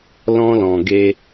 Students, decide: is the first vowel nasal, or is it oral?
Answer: nasal